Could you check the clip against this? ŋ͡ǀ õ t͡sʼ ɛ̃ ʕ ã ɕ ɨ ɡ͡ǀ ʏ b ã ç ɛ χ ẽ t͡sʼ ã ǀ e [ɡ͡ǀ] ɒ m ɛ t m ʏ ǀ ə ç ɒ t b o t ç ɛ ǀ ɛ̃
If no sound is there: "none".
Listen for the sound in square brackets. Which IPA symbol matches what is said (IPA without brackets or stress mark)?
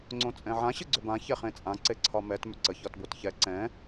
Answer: ǀʰ